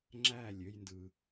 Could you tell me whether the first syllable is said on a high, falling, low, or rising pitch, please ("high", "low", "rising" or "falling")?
falling